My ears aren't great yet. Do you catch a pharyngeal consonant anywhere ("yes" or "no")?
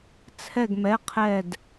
no